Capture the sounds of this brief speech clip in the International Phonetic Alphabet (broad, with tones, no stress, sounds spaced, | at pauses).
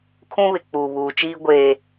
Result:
kʰ ũ˦ β ɪ˨ k͡p uː˨ β uː˨ t͡ʃ iː˦ ɡʷ eː˦